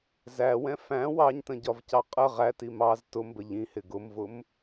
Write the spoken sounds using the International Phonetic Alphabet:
zæwɛ̃ fæ̃ wɑɲtə̃ɟɒvcɑ qʼə ʁæti mɑz tʊmbə ʎĩhɪ ɡʊmvʊm

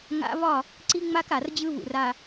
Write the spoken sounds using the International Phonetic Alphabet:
ŋa̰˦ βɒ˦˨ | ǀi˦ŋ͡ma˦k a˨rd͡ʑɯ˦βṵ˨r a˨

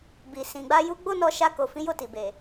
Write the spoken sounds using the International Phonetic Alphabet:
bi˨ sĩ˨ɡ͡ba˧ju˧ ɡ͡bo˦nɔ˧ʃa˧ ko˨fĩ˨˦jo˦˨ ti˨be˨

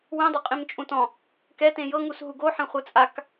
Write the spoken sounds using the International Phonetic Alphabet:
wĩdˤɛ qʼĩmt͡ʃʼũtɔ̃ | kɛtẽ jɤŋus ɦuɡo ħɛ̃χʷɯt͡sʼak

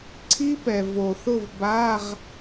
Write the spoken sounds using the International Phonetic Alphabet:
ǀʰi˦˥ pɛ˨vo˨θʊ˥˨v ba˧˥˧ʁ

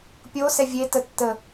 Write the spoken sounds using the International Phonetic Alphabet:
pʲosɛ vʲetətːə

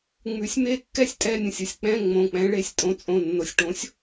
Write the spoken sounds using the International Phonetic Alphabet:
ŋ͡mʉ˩˥sʲme˥˧kːɛ˥˧sʲ tʼɛ˧˥˧nʲə̃˩sʲə˩˧˩sʲ k͡pɛ̃˧˥˧ ŋ͡mõ˩˧˩k͡pɛ̃˩˥ɭe˩˥sʲ tʼõ˩˥t͡sʼõ˩˧˩nːo˩sʲʈõ˩˥sʲ

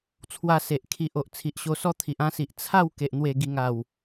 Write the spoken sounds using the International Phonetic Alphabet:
t͡sʰwa˧se˨ʔ kʰi˨ʔ o˨ʔ t͡sʰi˨ʔɕo˧sɔ˦t̪ʰi˨ʔ ã˧si˨ʔ t͡sʰa˥˧w ke˨ʔ n̪we˨˩ɡi˨˩ŋa˨˩w

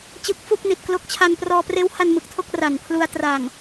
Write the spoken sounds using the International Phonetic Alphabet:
t͡ɕɯ˦˥k̚fu˥˩k̚ ni˨˩t̚ klo˦˥k̚ t͡ɕʰa˧n prɔː˧preː˦˥wha˧n mɯ˨˩k̚tʰo˥˩k̚ra˨˩npʰlu˧a̯ tra˨˩ŋ

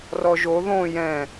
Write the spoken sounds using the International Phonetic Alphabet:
rɔʒo ðõ jɛ̃

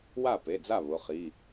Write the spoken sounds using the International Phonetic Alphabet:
wa˥˩pe˩˧˩d͡za˥˩ βʊ˩˧˩χi˩˧˩

